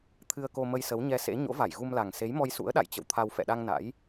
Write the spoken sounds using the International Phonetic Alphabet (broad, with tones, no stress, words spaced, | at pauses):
t̪ʰɨ˧ə̯ko˧mə˧j sə˨˦wɲɛ˧sḛ˧˥ ɲo̰˧˥va˧˩jɣu˧mla˨˩ŋ se˨˦jmɔ˧jsṵ˧˥ə̯ ɗa̰˧˨jt͡ɕə̰˧˨w t̪ʰa˧w fɛ̰˧˨ɗa˧ŋ na̰˧˥j